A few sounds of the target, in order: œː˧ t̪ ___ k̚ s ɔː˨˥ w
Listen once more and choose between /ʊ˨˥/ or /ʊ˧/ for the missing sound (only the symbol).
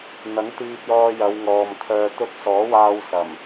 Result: ʊ˧